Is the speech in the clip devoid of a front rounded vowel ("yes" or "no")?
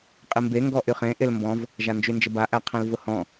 no